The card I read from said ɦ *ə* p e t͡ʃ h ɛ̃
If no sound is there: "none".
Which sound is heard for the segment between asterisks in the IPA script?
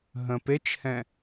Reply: ə̃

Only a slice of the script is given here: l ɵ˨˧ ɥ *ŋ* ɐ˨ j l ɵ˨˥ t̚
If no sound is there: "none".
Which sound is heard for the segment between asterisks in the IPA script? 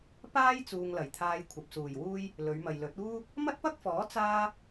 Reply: m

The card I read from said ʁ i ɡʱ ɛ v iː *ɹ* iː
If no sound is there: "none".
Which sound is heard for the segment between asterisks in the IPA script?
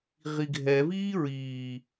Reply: ɹ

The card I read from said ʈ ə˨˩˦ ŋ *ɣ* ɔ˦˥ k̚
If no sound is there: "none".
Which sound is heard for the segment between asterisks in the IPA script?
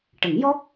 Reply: j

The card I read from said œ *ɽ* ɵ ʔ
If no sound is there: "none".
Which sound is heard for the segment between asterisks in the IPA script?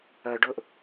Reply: ɖ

